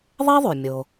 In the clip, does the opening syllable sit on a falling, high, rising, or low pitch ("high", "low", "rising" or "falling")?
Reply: high